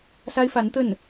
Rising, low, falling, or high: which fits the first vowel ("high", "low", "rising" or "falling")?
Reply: high